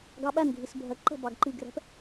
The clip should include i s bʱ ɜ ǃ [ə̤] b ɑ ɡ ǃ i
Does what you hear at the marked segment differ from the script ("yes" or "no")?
no